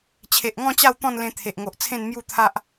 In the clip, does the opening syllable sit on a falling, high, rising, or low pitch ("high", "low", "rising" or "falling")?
low